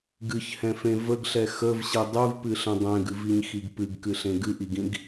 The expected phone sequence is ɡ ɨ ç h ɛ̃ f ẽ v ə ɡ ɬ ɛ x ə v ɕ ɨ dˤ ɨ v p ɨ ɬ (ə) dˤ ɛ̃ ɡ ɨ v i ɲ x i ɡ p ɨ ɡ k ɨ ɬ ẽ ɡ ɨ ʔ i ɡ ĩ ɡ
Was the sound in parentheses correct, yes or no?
no